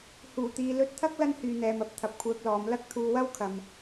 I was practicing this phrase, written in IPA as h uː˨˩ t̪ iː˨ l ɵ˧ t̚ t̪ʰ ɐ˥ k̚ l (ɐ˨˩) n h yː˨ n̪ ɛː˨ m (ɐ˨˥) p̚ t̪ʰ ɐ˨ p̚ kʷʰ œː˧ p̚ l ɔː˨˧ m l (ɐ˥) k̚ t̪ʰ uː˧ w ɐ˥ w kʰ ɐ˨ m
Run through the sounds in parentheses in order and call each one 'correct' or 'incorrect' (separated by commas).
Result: incorrect, correct, correct